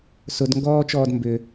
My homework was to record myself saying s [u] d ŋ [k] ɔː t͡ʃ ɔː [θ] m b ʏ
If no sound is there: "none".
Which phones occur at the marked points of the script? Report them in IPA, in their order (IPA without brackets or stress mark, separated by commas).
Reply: ʊ, ɡ, d